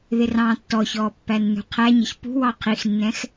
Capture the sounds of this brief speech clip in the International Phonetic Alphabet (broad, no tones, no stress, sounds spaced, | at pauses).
ð ɪ r ɑ̃ː tː ɔ ç ɔː pː æ nː ṳ qʰ æ ɲ ə ç p ṳ w ɑ qʰ i x nː ɛ̃ x